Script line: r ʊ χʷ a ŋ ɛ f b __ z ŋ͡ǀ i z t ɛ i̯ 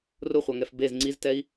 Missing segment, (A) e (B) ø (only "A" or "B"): A